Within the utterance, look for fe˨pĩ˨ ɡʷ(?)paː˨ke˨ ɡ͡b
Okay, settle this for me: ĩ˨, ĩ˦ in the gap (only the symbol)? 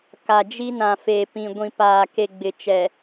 ĩ˨